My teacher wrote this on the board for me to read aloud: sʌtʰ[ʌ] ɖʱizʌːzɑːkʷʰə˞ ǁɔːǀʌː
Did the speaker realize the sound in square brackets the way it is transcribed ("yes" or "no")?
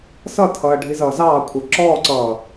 no